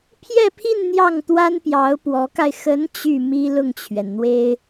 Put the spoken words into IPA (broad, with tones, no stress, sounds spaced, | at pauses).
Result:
pʰ j ɛ˥˧ pʰ i˥˧ n n̪ j ɑ˥˩ ŋ t̪ w a˥ n p j ɑ˧˥ ʊ̯ p w ɔ˧˥ k a˧ ɪ̯ x ə˧˥ n t͡ɕ y˥˩ m i˥ l ʊ˥˩ ŋ t͡ɕʰ ɥ ɛ˩ n n̪ w e˥ ɪ̯